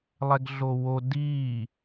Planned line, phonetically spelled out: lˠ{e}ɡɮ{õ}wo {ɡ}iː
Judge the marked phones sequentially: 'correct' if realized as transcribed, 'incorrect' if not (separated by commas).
incorrect, incorrect, incorrect